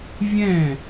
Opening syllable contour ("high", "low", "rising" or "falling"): falling